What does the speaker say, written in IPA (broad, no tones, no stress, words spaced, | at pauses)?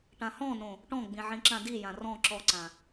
ʈãhɔ̃nõ | ʈɔ̃ɡ͡bĩ ʕĩǁãdijã rɔ̃ ǁɔǀã